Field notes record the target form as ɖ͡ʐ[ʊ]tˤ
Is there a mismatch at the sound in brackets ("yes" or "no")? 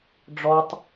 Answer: yes